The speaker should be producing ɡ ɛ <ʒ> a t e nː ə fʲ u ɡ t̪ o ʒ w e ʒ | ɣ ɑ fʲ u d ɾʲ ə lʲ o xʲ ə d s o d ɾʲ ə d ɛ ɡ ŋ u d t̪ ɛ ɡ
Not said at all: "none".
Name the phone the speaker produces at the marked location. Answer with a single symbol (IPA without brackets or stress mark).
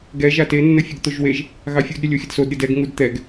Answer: ʒ